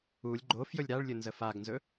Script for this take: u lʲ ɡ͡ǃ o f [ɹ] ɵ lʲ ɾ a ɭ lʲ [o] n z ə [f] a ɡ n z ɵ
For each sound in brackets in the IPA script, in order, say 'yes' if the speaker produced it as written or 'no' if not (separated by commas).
no, no, yes